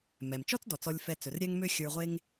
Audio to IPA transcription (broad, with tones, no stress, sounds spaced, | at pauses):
m ɛ˩ m t͡ʃ ɔ˥ t͡s d ɔ˩ t͡s ɔ˨ lʲ f ɛ˨ t͡s ɵ˩ r ɾʲ ɛ˥ ŋ m ø˥ xʲ ə˞˨ ʁʷ e˦ ŋ